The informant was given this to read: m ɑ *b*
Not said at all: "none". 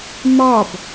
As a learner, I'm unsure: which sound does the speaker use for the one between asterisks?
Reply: b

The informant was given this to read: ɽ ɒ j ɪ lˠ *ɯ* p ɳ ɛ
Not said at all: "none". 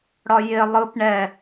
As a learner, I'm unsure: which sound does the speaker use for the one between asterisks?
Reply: ɯ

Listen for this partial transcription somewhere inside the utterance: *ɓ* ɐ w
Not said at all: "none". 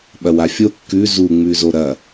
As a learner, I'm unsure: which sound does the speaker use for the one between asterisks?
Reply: ɓ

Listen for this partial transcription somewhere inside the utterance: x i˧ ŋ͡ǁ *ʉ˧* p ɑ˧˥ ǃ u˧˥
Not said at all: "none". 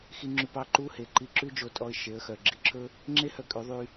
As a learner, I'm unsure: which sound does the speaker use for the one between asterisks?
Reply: ʉ˧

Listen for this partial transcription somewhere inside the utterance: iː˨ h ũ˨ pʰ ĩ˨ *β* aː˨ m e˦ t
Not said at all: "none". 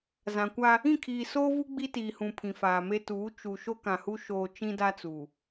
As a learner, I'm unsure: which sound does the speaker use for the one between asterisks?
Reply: f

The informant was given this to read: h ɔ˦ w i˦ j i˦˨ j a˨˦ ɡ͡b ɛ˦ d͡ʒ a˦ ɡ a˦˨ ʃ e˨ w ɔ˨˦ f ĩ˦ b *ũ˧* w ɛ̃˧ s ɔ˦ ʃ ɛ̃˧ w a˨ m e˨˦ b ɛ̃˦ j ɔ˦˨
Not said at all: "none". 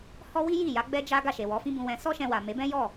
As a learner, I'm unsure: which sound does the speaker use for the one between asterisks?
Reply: ũ˧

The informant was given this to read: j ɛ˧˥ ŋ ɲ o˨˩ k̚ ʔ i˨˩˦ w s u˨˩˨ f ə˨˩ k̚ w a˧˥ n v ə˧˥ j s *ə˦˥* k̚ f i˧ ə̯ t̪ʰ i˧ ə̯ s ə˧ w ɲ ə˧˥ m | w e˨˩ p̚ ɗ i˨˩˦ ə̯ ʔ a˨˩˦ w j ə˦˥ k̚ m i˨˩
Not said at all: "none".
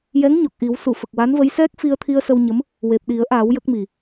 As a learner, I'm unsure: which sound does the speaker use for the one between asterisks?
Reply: ɛ˦˥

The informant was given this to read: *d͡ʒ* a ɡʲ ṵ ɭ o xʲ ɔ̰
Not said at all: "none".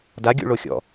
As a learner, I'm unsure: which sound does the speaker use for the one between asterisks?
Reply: d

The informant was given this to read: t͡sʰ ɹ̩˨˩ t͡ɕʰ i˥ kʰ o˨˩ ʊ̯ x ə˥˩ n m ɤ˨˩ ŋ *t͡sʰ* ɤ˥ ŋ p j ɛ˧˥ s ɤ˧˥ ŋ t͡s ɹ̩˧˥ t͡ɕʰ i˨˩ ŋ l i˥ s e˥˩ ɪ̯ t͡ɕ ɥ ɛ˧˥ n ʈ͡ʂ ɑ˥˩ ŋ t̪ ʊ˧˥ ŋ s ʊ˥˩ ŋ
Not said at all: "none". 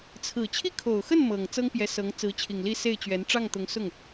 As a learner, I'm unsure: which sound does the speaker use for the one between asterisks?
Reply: t͡s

